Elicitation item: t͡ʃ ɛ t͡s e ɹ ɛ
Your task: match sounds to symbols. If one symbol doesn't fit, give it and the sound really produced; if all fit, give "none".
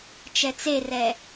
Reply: ɹ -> r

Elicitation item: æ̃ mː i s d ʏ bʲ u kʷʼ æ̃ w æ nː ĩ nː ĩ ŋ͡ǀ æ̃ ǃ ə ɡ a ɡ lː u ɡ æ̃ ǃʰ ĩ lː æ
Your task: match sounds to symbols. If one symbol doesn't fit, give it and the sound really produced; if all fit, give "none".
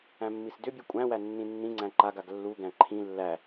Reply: ə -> a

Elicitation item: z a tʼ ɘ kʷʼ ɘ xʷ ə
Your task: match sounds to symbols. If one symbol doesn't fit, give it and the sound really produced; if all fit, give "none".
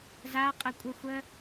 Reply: tʼ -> qʼ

